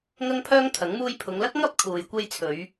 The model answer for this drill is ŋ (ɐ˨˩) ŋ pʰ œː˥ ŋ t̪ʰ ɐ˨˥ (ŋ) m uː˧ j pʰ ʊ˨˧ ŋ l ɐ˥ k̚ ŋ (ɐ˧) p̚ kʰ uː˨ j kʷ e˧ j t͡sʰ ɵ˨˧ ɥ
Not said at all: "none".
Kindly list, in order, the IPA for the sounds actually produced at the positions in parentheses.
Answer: ɐ˥, ŋ, ɐ˥

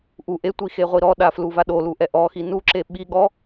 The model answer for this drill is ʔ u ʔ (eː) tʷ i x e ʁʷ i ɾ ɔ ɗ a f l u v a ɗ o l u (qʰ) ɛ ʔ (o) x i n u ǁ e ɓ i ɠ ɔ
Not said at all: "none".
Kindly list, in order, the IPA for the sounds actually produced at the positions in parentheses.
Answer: e, ʔ, ɔ

